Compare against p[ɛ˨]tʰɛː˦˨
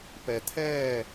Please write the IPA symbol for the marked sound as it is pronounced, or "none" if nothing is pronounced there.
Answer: ɛ˨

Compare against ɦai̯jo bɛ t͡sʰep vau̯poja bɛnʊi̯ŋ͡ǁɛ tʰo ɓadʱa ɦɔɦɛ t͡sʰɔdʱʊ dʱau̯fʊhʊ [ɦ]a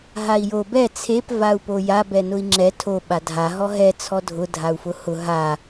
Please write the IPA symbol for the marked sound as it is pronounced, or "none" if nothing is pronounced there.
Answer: ɦ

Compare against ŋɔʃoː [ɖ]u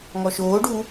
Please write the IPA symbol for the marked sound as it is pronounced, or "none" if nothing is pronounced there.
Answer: ɖ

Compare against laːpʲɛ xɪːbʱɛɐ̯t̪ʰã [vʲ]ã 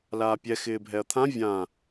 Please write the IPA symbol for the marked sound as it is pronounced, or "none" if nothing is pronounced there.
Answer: vʲ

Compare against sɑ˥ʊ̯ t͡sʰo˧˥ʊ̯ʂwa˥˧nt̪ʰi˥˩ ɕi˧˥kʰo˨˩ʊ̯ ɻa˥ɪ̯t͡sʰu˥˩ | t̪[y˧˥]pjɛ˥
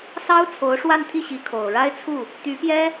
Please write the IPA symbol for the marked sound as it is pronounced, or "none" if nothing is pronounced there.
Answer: y˧˥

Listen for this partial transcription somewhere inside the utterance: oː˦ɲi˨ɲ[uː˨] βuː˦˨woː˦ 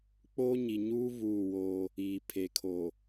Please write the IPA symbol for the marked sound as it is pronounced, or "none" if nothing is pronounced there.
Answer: uː˦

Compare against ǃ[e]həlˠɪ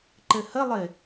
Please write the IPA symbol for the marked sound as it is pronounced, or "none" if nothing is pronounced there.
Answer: ɘ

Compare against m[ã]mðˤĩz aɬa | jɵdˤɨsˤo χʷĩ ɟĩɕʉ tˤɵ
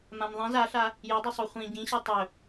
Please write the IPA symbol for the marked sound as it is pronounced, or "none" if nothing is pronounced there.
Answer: ã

